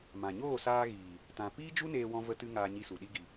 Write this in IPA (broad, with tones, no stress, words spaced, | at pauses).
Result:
mã˨ ɲoː˦˨saː˧ɣiː˨ | tã˨piː˦d͡ʒu˦neː˧ wɔ̃˧və˧tɨ˧ ŋaː˧ɲi˧su˨ ɗi˦ɡi˧